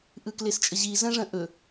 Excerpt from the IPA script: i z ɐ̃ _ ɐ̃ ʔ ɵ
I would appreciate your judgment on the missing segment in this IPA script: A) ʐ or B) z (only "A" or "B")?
A